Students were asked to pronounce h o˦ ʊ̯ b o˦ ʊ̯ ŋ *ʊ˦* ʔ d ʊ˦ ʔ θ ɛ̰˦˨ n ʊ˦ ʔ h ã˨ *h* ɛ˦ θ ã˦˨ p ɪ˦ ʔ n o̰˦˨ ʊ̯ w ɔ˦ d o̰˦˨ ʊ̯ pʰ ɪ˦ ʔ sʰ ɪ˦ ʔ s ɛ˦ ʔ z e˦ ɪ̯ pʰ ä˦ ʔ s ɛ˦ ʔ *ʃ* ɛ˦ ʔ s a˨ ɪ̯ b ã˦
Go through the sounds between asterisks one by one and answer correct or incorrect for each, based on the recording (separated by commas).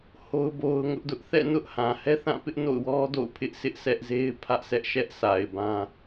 correct, correct, correct